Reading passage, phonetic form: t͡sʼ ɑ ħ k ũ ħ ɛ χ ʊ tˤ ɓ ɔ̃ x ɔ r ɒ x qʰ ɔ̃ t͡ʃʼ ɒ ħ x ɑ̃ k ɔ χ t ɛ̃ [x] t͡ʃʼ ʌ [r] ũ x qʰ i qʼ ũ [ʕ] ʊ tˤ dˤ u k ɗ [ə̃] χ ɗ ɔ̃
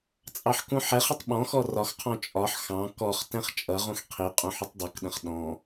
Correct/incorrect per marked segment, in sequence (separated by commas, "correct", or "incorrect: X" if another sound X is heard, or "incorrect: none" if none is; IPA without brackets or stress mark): incorrect: χ, incorrect: ʁ, incorrect: ħ, correct